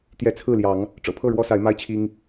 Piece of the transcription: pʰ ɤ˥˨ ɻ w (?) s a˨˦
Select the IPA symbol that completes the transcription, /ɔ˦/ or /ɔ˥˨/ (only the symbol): ɔ˦